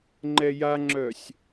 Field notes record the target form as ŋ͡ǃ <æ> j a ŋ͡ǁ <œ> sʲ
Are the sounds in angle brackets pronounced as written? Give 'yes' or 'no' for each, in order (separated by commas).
no, yes